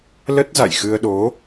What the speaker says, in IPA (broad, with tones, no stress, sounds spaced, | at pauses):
l ə˦˥ t̚ z a̰˧˨ j x ɨ˧ ə̯ ɗ o˨˦